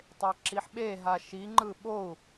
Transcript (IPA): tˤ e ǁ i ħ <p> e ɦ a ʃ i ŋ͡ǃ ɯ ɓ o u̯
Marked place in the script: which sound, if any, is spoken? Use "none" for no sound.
ɓ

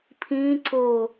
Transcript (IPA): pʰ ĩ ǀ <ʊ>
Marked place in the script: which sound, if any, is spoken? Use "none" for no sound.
ʊ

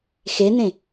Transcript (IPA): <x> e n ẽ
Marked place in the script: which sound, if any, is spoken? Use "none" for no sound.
x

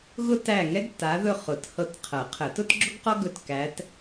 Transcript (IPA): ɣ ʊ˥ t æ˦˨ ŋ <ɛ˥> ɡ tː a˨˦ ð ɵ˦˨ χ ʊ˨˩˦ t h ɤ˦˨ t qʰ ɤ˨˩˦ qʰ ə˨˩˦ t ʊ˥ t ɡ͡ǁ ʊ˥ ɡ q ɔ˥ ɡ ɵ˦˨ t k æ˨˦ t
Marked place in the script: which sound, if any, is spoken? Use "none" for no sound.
ɛ˥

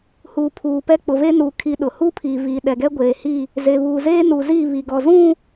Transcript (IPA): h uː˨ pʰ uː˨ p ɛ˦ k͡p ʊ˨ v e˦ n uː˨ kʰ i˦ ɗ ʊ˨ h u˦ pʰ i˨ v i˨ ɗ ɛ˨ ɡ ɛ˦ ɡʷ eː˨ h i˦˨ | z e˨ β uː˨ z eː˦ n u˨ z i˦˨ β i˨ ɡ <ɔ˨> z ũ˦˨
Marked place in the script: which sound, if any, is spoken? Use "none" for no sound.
ɔ˨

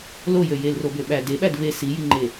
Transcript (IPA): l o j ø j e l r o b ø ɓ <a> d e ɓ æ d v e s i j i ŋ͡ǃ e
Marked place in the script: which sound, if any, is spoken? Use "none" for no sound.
æ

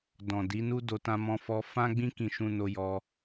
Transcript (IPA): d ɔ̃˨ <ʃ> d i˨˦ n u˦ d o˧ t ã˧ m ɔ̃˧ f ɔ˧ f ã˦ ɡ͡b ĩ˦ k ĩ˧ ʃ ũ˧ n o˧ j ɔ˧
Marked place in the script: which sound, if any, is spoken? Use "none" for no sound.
none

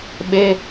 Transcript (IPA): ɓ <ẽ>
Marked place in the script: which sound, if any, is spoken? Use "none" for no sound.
e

